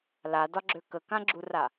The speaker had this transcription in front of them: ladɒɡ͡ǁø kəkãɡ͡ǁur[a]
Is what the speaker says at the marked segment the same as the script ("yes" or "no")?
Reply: yes